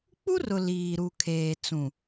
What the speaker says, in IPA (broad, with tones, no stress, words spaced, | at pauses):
k͡pu˦rʊ˨ liː˨ɾu˨ kʰeː˨t͡sũ˨